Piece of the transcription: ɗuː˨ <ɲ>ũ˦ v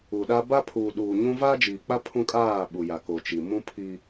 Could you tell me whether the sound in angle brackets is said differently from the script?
no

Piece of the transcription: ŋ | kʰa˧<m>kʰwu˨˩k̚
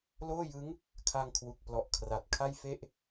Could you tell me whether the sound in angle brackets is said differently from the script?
yes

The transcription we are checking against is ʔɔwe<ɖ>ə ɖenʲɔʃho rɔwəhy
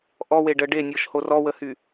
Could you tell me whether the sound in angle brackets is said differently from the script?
no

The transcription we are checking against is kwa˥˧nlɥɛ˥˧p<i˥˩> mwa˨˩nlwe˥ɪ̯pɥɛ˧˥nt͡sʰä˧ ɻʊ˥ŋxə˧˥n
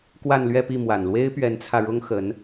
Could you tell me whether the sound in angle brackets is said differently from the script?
no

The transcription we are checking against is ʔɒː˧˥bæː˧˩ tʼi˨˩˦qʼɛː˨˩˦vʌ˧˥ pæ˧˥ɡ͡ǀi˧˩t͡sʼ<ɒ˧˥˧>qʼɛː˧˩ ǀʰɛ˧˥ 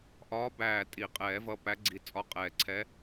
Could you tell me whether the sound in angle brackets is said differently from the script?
no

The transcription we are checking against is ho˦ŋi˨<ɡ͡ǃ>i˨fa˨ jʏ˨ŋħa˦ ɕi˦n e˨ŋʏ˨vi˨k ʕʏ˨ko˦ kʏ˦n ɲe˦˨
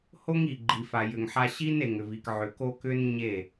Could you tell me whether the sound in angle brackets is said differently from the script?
no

